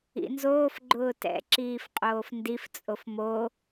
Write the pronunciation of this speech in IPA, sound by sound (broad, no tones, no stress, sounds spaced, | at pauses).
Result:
ḭ n z oː f ɡ͡ǃ ʊː t ɛ̰ ǁ iː f qʼ oː f n d i f t͡sʼ o f m o